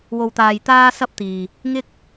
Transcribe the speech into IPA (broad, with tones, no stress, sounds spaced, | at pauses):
w o˧ w t̪ aː˧ j t̪ aː˥ s ɐ˥ p̚ t̪ iː˨ | ŋ ɪ˥ k̚